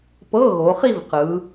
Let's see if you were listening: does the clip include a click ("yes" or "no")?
no